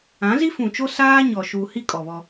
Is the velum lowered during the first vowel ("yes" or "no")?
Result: yes